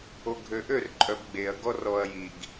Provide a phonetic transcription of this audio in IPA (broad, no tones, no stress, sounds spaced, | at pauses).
o ɡʱ ø ʔ ø r ǃʼ œ b ɡ͡b e ɐ̯ ɡ ɔ r ɔ ɐ̯ j i ɡ